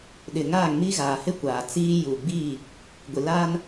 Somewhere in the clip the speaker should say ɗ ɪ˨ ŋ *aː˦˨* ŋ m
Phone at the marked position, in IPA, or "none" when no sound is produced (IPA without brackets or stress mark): aː˦˨